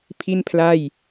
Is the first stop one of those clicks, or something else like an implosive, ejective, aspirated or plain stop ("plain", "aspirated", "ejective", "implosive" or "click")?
aspirated